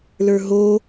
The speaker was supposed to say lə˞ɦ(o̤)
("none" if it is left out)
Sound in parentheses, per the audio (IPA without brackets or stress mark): o